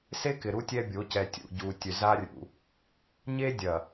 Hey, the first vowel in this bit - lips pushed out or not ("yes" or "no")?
no